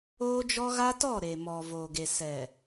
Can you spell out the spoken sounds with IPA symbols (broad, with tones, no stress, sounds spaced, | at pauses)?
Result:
oː˦ d͡ʒ ɔ˦ ɣ a˦ t ɔ˦˨ ɾ e˨ m ɔ˨ v oː˨ ɡ e˨ s ɛ˨